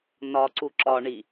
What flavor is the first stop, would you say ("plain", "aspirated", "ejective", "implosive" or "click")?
click